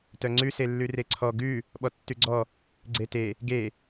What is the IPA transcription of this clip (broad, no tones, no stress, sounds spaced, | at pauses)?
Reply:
t œ ŋ͡ǀ ʉ s e lː ʉ r e ǀʰ ɔ ɡ ʉ | ɓ ɔ tː ʉ ɡ͡ǀ ɔ | ɡ͡ǀ e t e | ɡ e